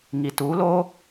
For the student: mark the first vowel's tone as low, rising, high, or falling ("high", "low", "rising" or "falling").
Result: low